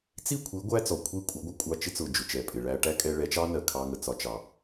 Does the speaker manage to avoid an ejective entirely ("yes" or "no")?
no